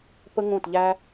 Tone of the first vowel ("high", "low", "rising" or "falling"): high